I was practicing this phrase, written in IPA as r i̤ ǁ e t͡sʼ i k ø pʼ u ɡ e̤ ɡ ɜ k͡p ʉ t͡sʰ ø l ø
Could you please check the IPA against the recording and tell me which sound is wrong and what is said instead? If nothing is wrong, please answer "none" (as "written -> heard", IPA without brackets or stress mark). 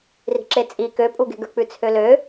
ɜ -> ə˞